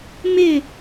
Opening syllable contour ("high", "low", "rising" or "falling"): falling